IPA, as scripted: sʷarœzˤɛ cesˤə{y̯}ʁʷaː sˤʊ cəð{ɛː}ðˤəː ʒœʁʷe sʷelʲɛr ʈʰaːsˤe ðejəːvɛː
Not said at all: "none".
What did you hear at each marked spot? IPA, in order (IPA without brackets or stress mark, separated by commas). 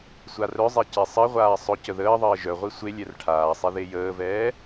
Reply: i̯, əː